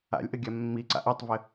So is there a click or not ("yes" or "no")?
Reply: yes